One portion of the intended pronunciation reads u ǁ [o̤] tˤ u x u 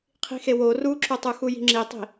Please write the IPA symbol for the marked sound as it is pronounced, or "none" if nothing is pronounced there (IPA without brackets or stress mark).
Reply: o